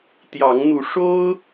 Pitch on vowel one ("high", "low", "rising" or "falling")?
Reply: rising